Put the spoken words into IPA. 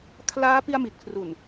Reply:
kʰ l aː˦˥ p i˧ a̯ m i˨˩ t̚ kʰ r u˨˩ n

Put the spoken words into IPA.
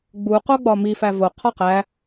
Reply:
ɡ͡b u q o ɡ͡b ɒ m i f æ v o qʰ ɒ q æ

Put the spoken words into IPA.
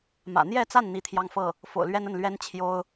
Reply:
m ä̰˨˩ n̪ j ɛ˥˧ t͡s a˥˩ n n̪ i˧˥ t̪ʰ j ɑ˥˧ ŋ f ɤ˥˩ | f o̰˨˩ ʊ̯ l ɥ ɛ˥ n ə˥˩ n l ɥ ɛ˥ n t͡ɕʰ j o˥ ʊ̯

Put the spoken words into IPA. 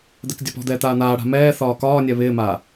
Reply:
d̪ ɛ k dʲ a p ɔ̤ d̪ ɛː t̪ aː n̪ aː ɽ a̤ m ɛː θ ɒː k ɒː nʲ ɛ β ɪː m aː

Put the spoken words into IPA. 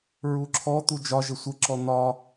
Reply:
ɹ u ǁʰ ɔ t̪ u d͡ʒ ɒ ʒ ə sʷ ə ǁ ɔ n̪ ɒ

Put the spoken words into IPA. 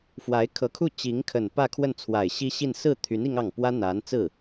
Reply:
f w a˧˥ ɪ̯ kʰ ɤ˧˥ kʰ u˥˩ t͡ɕ i˧˥ ŋ kʰ ə˨˩ n p ä˥˧ kʰ w ə˥˩ n t͡sʰ w a˨˩ ɪ̯ ɕ i˥ ɕ i˥˧ n s ɹ̩˥˩ t̪ʰ y˧˥ n i˥ ŋ ɑ˥˩ ŋ p w ä˥ n̪ a˧˥ n t͡s ɹ̩˥˩

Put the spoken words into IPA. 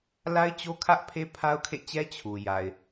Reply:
l a˦ ɪ̯ t͡ɕ o˦ kʰ ä˦ ʔ pʰ e˦ pʰ a˦ ʊ̯ kʰ ḛ˦˨ t͡ɕ ɛ˦ t͡ɕʰ u˨ j a˨ ɪ̯

